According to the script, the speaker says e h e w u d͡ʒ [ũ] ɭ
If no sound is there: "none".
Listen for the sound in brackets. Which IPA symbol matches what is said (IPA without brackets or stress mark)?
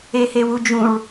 ũ